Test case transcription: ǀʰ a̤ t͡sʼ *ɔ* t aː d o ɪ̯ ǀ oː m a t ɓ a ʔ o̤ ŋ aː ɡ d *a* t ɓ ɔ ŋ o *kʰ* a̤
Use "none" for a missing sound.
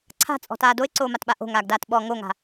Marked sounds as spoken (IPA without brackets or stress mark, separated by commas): ɔ̤, aː, ŋ